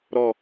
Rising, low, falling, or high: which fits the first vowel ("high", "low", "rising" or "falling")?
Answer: low